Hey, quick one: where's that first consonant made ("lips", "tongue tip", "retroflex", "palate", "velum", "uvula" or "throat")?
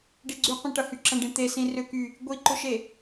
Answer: retroflex